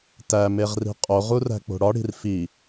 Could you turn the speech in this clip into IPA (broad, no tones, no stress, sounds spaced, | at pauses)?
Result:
t æ m e ʁ r i̤ qʼ o ʁ u r æ̤ k͡p o̤ ɽ ɒ ɽ i̤ r f i